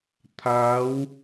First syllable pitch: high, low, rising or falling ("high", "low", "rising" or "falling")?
rising